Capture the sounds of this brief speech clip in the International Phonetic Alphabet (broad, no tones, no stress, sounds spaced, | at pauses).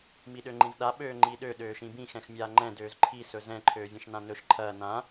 m i ɗ ø ŋ͡ǃ ĩ z ɗ a ɓ øː ŋ͡ǃ i ɗ ø ɗ øː ʃ ĩ b ĩ x ɛ̃ x mʲ aː ŋ͡ǃ ɛ̃ d øː z ǃʰ i s ɵ z ɛ̃ ǃʰ øː vʲ ɐ̃ ʃ n ã n ɵ ʃ ǃʰ ɐː n ã